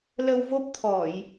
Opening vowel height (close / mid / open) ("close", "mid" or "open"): mid